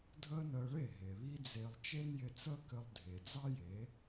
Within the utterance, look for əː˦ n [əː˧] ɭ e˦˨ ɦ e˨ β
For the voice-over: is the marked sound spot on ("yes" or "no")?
yes